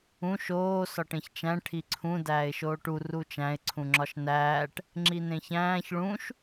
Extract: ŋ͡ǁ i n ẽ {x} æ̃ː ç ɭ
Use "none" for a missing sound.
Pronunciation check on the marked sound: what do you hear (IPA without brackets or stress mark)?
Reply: ç